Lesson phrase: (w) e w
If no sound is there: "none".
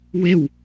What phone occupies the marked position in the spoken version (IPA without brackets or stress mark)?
w